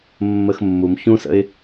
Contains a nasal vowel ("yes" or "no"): yes